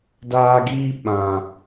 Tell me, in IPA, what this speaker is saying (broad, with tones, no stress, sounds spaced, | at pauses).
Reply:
d aː˧ ɡ iː˦ ɓ ã˨